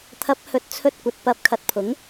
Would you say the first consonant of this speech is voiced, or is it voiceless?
voiceless